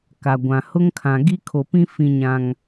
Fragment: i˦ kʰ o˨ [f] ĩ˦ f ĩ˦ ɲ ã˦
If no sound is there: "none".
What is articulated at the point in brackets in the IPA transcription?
p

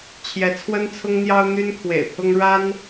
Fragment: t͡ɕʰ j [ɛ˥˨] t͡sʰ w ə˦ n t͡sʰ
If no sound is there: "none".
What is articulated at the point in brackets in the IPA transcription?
ɛ˨˦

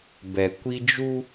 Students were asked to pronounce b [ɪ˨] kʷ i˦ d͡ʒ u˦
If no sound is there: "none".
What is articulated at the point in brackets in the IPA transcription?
ɛ˨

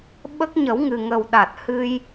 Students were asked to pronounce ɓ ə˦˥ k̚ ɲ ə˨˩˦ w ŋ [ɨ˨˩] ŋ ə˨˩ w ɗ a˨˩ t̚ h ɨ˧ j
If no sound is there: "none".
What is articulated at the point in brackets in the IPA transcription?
ɨ˨˩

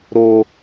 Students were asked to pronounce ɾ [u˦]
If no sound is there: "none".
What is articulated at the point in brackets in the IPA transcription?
o˦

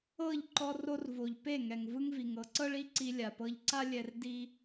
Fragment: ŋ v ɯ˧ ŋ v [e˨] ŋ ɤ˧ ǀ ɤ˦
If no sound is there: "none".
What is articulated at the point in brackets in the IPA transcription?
i˨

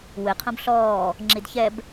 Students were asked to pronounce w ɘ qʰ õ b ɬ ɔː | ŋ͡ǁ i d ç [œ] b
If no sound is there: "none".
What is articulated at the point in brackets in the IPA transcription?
ɛ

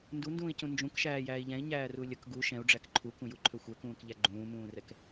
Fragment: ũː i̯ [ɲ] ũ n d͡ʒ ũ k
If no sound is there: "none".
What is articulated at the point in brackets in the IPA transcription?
c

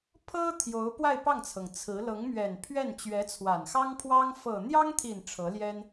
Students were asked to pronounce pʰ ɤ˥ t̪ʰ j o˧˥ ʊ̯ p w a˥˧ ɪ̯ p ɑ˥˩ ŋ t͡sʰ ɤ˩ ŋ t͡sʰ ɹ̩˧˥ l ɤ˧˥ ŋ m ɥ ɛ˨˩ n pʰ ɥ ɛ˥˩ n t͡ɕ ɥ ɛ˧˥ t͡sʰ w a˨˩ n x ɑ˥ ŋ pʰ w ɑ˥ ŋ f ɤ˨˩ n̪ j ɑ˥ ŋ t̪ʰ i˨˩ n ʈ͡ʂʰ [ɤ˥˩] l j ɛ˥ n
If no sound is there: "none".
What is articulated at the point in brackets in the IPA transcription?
ɤ˧˥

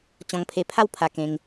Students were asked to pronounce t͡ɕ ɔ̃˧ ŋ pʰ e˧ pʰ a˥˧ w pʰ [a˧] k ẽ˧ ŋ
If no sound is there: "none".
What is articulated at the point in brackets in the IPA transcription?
a˧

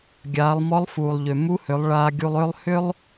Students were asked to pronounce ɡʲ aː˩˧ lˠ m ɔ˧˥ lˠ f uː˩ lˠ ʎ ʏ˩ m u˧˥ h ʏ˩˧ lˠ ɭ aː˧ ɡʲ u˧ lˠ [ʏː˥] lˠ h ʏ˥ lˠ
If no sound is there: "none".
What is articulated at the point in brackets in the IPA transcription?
ʏː˥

